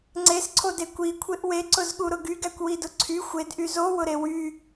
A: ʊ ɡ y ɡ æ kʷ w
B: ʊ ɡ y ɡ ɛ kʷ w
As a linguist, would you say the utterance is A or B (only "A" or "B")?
A